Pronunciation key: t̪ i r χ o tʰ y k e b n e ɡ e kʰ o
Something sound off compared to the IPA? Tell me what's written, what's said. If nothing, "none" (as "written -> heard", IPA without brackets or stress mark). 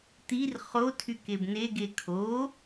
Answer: none